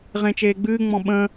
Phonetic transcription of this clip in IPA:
ʁ ẽ t͡ʃ eː ɡ͡b ɨː ŋ͡m ɔ̃ ɓ ə̃ː

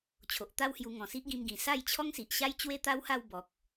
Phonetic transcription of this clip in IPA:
t͡ɕʰ o˨ ʔ t̪ a˦ w h j u˧ ŋ ɔ̃˨˩ s i˦ ʔ ɡ ĩ˧ m ɡ ĩ˨˩ s a˥˧ j t͡ɕʰ ɔ˦ ŋ s i˨ ʔ ɕ a˦ j t͡ɕ w e˦ t̪ a˦ w h a˥˧ w b ɔ˨ k̚

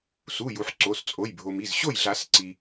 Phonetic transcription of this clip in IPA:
s u˩˧˩ j u˩ ħ ǀ o˩˧˩ s t͡sʼ o˩˧˩ j bʱ o˩ m i˩˧˩ z ɕ o˥˨ j ɮ a˨˩˦ s ǀ i˩

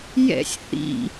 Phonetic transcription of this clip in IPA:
j ɛ̰ sʲ θ ḭ

